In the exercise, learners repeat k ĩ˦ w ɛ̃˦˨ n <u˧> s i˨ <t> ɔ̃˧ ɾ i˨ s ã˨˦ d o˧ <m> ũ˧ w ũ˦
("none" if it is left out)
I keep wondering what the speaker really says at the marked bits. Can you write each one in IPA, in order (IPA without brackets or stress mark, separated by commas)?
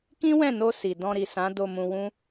o˧, d, m